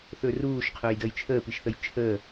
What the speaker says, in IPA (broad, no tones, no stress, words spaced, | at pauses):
θɵːruːʃ qʰɵːjdəːjt͡ʃʰəː piʃθəjt͡ʃʰəː